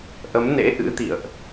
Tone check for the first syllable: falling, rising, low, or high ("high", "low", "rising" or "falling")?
rising